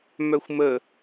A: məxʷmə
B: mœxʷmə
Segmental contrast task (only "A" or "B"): B